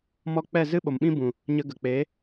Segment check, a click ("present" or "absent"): absent